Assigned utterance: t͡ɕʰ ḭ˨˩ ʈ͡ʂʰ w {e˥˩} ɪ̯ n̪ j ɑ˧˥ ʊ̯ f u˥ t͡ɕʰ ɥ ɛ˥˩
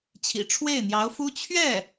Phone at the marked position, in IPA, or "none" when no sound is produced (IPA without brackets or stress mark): e˥˩